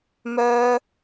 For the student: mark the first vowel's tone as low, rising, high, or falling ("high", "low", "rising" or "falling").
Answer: high